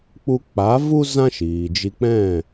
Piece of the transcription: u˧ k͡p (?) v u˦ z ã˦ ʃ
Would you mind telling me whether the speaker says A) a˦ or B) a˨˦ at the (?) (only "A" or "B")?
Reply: B